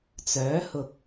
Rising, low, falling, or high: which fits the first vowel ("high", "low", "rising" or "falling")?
rising